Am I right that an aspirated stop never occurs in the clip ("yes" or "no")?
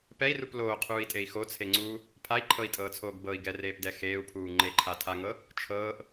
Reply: no